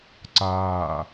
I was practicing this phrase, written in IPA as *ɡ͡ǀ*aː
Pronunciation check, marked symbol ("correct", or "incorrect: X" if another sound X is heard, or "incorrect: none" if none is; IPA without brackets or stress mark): incorrect: ǀ